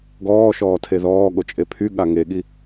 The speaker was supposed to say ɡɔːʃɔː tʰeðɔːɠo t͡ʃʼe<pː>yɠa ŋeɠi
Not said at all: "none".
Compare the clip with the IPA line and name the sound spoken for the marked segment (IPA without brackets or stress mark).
pʰ